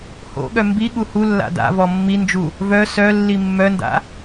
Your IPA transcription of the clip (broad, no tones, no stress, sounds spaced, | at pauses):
h o̰ ɠ œ m b i ɠ u h u lː a̰ d a̰ v ɔ mː i n d͡ʒ u | v œ s œ lː i mː œ n d a̰